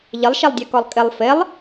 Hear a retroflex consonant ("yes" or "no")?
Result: no